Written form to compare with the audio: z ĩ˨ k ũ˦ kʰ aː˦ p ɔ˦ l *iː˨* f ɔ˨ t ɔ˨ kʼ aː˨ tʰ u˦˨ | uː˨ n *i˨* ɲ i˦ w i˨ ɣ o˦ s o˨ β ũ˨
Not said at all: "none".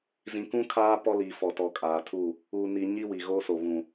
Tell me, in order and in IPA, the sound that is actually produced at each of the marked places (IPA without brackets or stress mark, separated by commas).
iː˨, i˨